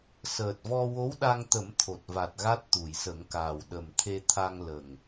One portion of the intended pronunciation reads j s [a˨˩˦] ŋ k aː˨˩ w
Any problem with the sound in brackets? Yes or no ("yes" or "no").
yes